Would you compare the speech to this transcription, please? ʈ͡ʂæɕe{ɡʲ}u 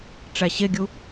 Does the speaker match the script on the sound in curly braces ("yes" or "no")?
yes